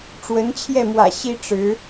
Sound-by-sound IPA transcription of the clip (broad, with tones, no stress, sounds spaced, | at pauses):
ʈ͡ʂ w ə˧˥ n t͡ɕʰ j ɛ˥˩ m w ä̰˨˩ ɕ i˥ ʈ͡ʂ ɻ̩˧˥